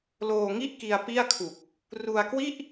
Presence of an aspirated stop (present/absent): present